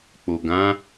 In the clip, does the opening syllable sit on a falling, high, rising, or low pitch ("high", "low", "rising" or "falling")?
low